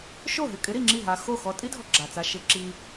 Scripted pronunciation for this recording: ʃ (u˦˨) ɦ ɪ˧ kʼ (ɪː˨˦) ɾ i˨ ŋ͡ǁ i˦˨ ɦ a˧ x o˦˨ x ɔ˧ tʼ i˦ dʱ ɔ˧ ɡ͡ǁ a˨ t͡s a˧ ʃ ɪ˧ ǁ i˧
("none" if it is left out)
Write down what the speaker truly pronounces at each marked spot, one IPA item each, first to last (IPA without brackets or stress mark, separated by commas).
o˦˨, ɪ˨˦